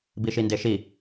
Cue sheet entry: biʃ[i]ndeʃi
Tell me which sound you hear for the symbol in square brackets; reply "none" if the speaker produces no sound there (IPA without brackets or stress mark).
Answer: i